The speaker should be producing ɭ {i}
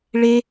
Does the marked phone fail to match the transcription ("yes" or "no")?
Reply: yes